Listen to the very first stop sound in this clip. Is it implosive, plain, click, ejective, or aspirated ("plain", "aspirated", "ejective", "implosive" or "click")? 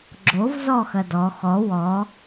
click